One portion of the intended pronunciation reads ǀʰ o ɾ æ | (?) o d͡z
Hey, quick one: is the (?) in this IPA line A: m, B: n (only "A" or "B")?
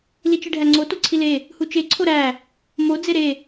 A